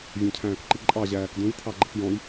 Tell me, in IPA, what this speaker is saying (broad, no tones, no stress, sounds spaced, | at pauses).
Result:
vʲ æ̃ cʰ æ̃ː k ǃ i ǃʼ ɑ ʑ æː k d ũ j tʰ ɑ ɡ͡ǃ ə k j ɔ̃ j